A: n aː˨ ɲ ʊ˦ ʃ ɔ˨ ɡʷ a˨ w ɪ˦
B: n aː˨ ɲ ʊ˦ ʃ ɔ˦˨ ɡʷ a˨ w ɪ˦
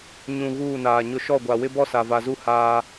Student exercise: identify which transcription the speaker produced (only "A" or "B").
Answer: B